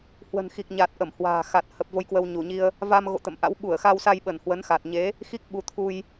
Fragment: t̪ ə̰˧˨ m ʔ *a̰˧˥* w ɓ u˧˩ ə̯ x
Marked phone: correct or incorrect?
correct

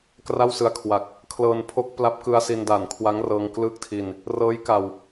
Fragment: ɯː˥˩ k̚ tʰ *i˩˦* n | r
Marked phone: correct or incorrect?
incorrect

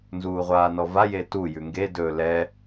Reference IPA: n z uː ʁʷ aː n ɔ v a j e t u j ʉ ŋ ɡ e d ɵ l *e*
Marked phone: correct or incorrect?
incorrect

